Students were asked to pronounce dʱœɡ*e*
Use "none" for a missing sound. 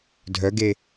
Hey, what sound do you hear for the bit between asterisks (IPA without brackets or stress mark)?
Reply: e